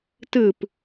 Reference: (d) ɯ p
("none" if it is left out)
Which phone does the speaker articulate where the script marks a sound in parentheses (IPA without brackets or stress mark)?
t